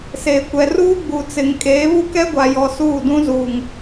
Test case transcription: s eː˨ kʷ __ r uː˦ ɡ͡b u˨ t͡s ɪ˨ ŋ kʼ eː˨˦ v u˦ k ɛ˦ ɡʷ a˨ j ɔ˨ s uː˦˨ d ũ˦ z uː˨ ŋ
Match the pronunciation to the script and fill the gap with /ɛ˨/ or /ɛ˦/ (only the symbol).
ɛ˨